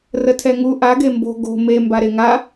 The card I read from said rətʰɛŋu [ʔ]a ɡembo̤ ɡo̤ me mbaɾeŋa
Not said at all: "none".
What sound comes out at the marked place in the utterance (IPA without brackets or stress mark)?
ʔ